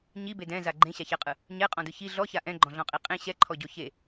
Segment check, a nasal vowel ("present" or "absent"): present